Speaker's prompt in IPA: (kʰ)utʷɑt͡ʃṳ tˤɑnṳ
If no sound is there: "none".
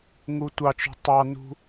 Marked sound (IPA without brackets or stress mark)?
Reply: ŋ